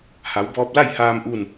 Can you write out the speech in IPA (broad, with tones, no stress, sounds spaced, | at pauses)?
h a˩˧ w b ɔː˧ p̚ l a˥˨ j h aː˧ m ʔ u˥˨ n